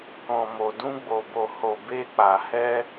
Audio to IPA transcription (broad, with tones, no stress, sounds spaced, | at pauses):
k ɔ̃˨ m o˨ d ũ˧ ɡ͡b o˨ b o˨ h o˨ b e˧ k͡p a˨ h ɛ˧